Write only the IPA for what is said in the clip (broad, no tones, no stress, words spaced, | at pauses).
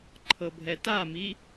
ǃʰɤbʱɛtami